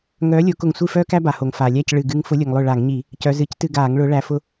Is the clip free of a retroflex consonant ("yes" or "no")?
no